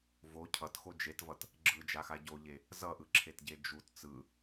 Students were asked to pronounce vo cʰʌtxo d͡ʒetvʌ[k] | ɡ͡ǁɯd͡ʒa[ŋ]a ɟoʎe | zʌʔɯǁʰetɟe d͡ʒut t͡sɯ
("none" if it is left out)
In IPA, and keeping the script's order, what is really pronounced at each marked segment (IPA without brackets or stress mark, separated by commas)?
t, x